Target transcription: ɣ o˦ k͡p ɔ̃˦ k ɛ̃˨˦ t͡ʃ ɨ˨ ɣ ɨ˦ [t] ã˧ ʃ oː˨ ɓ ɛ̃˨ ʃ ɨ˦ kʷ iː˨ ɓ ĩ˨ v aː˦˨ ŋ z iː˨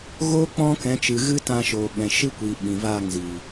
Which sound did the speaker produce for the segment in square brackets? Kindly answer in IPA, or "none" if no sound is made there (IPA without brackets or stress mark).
t